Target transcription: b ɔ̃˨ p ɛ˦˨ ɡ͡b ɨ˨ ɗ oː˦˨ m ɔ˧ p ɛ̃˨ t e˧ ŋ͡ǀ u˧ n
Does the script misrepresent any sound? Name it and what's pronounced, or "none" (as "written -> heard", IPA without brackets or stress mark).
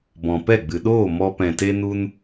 ŋ͡ǀ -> n